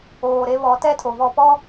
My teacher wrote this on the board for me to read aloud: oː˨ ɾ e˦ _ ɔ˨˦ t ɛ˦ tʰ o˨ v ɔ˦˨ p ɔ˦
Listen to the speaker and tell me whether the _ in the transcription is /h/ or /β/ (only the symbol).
β